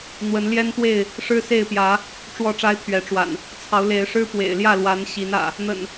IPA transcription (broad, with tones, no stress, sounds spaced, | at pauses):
n̪ w ə˨˦ n l j ɛ˦ n t̪ w e˥˨ ɪ̯ | ʂ ɻ̩˦ s e˥˨ ɪ̯ p j ä˨˦ | ʈ͡ʂ w ɔ˥˨ ʈ͡ʂ a˦ ɪ̯ t̪ʰ ɥ ɛ˨˦ ʈ͡ʂ w a̰˨˩ n | t͡sʰ ɑ˨˦ ʊ̯ l e˨˦ ɪ̯ ʂ ɻ̩˦ p w ḛ˨˩ ɪ̯ l j ä˥˨ l w a˨˦ n ɕ i˨˦ n ä̰˨˩ | n̪ ə̰˨˩ n